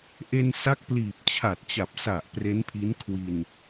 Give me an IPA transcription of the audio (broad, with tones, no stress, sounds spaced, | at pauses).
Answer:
ʔ e˧ n s a˦˥ k̚ p l iː˨˩ p̚ t͡ɕʰ a˨˩ t̚ t͡ɕ a˨˩ p̚ s a˨˩ ʔ p r e˦˥ n pʰ i˦˥ n kʰ w i˧ n